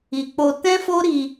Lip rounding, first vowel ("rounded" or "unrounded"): unrounded